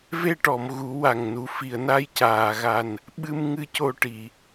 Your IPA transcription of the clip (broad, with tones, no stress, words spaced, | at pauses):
ve˧ʈɔ˨˩˨m ɣu˨˩˦wa˨˩ŋnu˨˩˦ fi˨˩˨ə̯na˧jcaː˨˩˨ɣa˨˩n | ɓɨ˧m ŋɨ˧co˧ʈi˨˩˨